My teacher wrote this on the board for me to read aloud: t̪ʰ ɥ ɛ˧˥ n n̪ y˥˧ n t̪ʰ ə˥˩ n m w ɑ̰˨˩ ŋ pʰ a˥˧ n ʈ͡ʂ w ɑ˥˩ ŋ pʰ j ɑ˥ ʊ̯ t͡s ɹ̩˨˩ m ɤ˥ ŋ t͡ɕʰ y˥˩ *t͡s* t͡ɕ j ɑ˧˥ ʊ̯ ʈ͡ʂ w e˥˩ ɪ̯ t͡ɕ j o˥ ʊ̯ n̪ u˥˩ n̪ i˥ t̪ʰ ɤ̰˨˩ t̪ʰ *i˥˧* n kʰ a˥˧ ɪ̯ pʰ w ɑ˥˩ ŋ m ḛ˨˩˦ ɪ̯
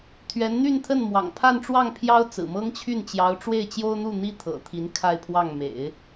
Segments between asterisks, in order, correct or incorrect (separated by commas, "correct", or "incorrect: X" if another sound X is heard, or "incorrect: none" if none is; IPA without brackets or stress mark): incorrect: n, incorrect: i˧˥